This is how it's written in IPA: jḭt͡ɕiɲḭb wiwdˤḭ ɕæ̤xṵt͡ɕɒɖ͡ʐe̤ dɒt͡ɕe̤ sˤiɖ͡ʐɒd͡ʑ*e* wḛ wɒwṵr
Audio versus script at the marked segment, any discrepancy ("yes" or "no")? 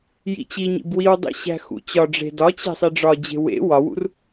yes